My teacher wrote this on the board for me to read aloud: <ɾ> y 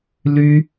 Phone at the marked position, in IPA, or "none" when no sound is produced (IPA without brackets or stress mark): l